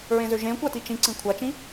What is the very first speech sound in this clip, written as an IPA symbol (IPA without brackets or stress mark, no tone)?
ɹ